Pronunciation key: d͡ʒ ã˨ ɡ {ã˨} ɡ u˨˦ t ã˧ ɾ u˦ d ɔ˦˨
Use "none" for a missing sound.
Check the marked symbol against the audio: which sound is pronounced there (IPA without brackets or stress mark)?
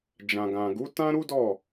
ã˨